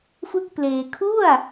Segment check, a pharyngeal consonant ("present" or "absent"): absent